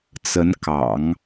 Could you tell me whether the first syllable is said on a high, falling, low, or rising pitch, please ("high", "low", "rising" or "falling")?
rising